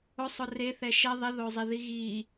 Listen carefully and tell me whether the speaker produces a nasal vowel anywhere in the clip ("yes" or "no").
no